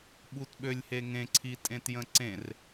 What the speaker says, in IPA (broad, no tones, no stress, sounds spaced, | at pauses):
ɓ u t ɓ ø lʲ h e ŋ ẽ ǀʰ i tʼ ẽ t j ə̃ ǀ ẽ r